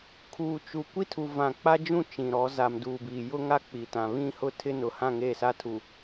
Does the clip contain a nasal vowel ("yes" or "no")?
yes